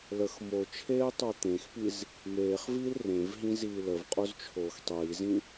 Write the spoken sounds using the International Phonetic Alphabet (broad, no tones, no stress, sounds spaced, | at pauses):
l ə x m o t͡ʃʰ eː tˤ o t̪ ẽ x p i z | m eː χ v iː l r ẽ v ɦ ĩ z iː l ə v qʼ o z t͡ʃʰ oː x tˤ iː z ĩ